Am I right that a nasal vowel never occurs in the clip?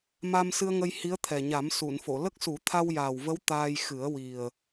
yes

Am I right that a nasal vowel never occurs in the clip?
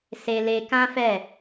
no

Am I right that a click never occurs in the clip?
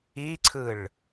no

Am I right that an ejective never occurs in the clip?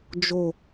yes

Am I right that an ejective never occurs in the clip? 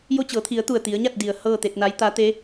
yes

